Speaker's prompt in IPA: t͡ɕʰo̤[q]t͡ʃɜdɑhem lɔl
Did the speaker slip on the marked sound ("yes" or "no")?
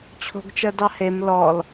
yes